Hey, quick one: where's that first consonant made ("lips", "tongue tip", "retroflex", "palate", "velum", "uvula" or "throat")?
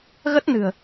velum